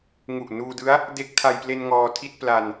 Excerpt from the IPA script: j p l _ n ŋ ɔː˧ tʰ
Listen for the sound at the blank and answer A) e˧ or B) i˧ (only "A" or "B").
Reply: A